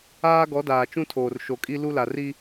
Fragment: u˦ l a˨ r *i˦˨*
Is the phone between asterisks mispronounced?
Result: yes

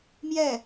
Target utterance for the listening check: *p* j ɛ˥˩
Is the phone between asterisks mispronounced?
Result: yes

